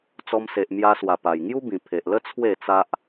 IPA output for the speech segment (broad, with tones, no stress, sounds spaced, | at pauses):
t͡s ɔ˧ m s e˨ ʔ m j a˧ s w a˨˩ p a˨˩ j ŋ j u˦ b ĩ˨˩ pʰ e˨ ʔ l ə˦ t͡sʰ w e˥˧ t͡s a˦ ʔ